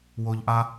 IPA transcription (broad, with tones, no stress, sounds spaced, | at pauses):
w o˦ ʎ ʔ a˥